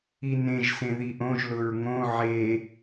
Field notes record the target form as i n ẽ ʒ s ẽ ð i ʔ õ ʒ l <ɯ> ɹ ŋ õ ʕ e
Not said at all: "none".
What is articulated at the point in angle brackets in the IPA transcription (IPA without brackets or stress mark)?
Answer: ʊ